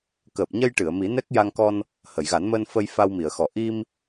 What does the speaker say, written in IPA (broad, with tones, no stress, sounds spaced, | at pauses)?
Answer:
k əː˨˩ p̚ ɲ ə˧ j ʈ ɨ˨˩˨ ə̯ m i˨˩˦ n ɛ˦˥ k̚ j a˧ ŋ k ɔ˧ n | h ə˨˩˨ j ɣ a˨˩˦ n m əː˧ n f ə˧ j f a˧ w m i˨˩˨ ə̯ x ɔ˨˩˨ ʔ i˧ m